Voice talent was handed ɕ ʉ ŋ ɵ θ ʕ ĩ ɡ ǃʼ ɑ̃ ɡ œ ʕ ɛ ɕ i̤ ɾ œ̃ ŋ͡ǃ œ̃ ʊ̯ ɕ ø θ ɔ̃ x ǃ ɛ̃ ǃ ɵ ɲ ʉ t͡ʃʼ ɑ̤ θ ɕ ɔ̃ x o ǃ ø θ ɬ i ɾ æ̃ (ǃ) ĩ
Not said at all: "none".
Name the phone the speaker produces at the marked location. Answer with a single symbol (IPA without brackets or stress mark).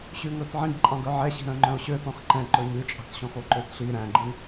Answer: ɡ͡ǃ